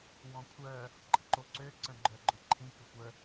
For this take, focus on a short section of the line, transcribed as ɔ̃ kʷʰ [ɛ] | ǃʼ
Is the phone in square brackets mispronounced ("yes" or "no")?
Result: yes